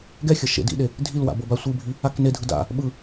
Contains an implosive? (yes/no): yes